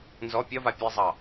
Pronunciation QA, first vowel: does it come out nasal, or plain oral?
oral